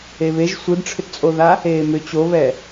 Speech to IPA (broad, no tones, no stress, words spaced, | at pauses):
eβeʒ sʷɨdʈ͡ʂʰʏtt͡sʼoða | eːmʏ t͡ɕoβɛ